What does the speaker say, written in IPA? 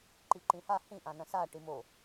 ǃ i ǃ ĩ h a h ĩ ʔ ã n ɐ̃ s a ʈ i m o

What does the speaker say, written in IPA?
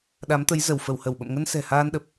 ɗ a˨˦ m t̪ ə˨˦ j z ə˧˩ w f ə˧˩ w h ə˧˩ w ɓ ə̰˧˨ m ŋ ə˧ n s ɛ̤˨˩ h aː˧ n ɗ ə˨˩ p̚

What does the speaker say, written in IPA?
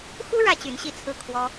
x u˥ ɻ ä˥ t͡ɕ y˧˥ n ɕ i˥˧ t͡sʰ ɹ̩˥˩ kʰ w ɔ˥

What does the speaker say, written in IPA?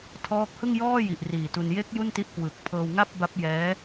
tʰ ɔː˦˥ k̚ h ɯ˥˩ ŋ j ɔː˥˩ j i˨˩ ʔ r iː˨˩ t u˧ n j e˦˥ k̚ j u˥˩ n t i˦˥ ʔ k w ɯ˨˩ k̚ pʰ ɤː˧ w ŋ a˥˩ p̚ b a˦˥ p̚ j ɛː˦˥

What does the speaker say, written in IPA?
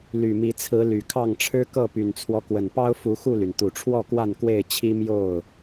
l y˨˩ m i˨˦ t͡sʰ ɹ̩˨˦ l y˨˩ kʰ ɑ˥˨ ŋ ʈ͡ʂʰ ɻ̩˦ k ɤ˥˨ p y˨˩ n t͡sʰ w ɔ˦ k w ə˨˩ n p ɑ˦ ʊ̯ f u˨˦ x u˥˨ l y˩ n t̪ u˨˩ ʈ͡ʂʰ w ɔ˥˨ k w a˥˨ n k w e˥˨ ɪ̯ t͡ɕʰ i˦ m j o˥˨ ʊ̯

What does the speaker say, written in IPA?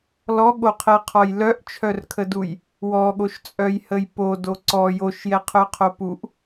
l ɔ ɠ o qʰ ɛ qʰ ɔ j l œ ʔ t͡ʃʰ œ r kʰ ə d u j | w ɔ ɠ o ʃ t͡sʼ œ j h ə j p o d o ǀ ɔ j o ʃ j ɛ qʰ œ qʰ o p u ʔ

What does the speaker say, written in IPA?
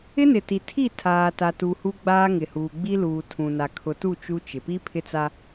ɪ˦ n ɪ˨ t i˨ tʰ i˦˨ tʰ aː˨ t a˨ t u˨ h u˦ ɡ͡b aː˦ ŋ ɪ˨ h uː˨ ɡ͡b i˦ l uː˨ tʰ ũ˨ n a˨ kʰ ʊ˨ t u˦˨ t͡ʃ u˦ t͡ʃ ɪ˨ p i˦ pʰ ɪ˦ t͡s a˦

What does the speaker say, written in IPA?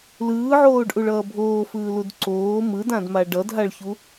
l ɯː ʕ oː ɖ ʔ u ɭ ʌː bʱ oː f ɯː l u d ǀ oː m ɯ d ã d m a ɖ ʌ d ɦ a ɭ ç u

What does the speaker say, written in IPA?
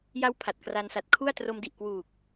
j a˦˥ w pʰ a˨˩ t̚ k r a˧ n s a˨˩ t̚ kʰ u˥˩ a̯ t r o˧ m d i˨˩ ʔ k w uː˨˩ k̚

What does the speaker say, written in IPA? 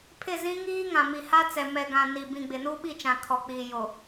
pʰ ɪ˦˨ z ĩ˦ ŋ iː˦ ŋ ã˨ m i˨ h a˦ t͡s ɛ˨ m ɛ˨ ɡ ã˨ n i˨ b ĩ˨ ɡ͡b ɪ˨ n u˦ ɓ i˦˨ t͡ʃ ã˨ kʰ ɔ˨ k͡p iː˨ j o˨

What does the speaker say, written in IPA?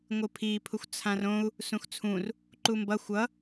ŋʷ ɯ pʰ i pʰ u xʷ t͡sʰ ã r õ u̯ | s ũ x t͡sʰ ũ r | ǃ u m b ʌ xʷ ʌ

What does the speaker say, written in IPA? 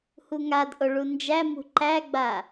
h u ŋ a d ʔ o ɭ u n d͡ʒ æ m ṳ ǃ æ ɡ͡b a

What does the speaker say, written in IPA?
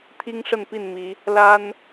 t̪ʰ i˦ ŋ ʂ ə˥˨ n p i˥˨ n m i˨˦ | l a˦ n

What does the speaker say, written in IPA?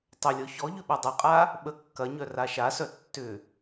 tˤ ʏ lʲ ɔ ç ɔ ʎ ʏ ɓ u dˤ ɐ qʼ a | ɓ ə kː ɐ ɲ œ r a ʃ a s œ tː ʏ

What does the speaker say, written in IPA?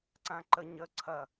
ǀ ã ǃ ə ɲ ə ǀʰ ɐ

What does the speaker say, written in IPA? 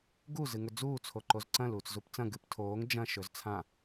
ɡ u z ɨ ŋ ɵ d͡z uː t͡sʰ o ǃ o z ǀ ɐ̃ l uː t͡s z u p t͡s ɐ̃ ɡ ɨ p tʰ oː ŋ d͡ʒ ɐ̃ ʃ ɵ z t͡sʰ ã

